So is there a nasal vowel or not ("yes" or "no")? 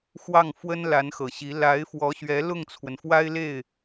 no